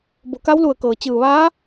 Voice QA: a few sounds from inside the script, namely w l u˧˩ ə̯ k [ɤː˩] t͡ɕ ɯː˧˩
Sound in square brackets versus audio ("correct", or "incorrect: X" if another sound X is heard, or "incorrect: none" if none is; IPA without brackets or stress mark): correct